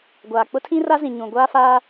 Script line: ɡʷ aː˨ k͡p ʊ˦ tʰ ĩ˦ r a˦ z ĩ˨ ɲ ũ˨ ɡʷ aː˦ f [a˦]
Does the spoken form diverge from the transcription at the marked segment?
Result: yes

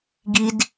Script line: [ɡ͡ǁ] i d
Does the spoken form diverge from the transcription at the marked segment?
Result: yes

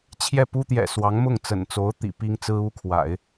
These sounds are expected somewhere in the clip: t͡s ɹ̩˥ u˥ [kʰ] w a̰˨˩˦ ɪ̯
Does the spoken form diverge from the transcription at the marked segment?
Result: no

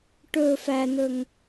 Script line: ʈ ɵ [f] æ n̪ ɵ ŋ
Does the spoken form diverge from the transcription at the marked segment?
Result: no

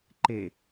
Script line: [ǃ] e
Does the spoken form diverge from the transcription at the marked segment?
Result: no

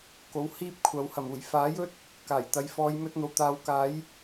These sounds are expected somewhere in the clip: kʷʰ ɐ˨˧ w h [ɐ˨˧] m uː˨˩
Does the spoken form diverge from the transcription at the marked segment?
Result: yes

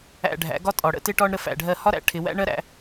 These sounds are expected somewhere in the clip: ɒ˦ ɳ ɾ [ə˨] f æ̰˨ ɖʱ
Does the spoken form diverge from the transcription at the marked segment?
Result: yes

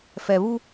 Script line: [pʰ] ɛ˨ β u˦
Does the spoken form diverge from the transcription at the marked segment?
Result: yes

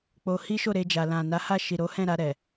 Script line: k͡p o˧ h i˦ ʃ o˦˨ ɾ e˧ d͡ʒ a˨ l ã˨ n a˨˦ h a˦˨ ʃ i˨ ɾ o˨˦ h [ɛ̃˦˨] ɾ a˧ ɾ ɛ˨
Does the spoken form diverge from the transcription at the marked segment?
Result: no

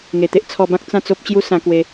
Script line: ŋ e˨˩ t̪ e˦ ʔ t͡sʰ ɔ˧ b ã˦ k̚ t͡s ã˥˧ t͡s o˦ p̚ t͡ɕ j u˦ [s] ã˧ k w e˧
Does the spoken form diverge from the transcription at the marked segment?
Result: no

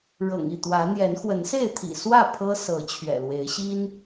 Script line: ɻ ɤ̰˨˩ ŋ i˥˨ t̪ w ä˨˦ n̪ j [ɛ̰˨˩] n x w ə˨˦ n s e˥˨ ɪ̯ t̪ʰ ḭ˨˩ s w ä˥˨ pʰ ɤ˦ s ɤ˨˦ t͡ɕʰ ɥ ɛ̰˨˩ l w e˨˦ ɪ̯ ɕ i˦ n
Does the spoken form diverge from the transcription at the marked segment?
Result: yes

